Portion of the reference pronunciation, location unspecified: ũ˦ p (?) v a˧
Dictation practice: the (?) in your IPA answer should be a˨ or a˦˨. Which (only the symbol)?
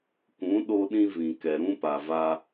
a˨